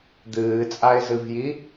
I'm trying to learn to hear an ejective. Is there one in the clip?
yes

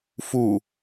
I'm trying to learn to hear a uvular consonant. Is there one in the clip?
no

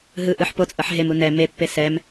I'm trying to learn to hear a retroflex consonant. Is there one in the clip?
no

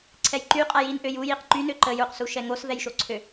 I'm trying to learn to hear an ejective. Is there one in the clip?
yes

